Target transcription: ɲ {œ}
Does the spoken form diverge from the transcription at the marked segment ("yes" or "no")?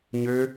yes